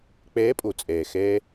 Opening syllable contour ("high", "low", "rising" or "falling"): rising